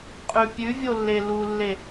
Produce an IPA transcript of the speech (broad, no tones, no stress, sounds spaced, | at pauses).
qʼ ʉ pʲ ʉ vʲ o lː e l u lː e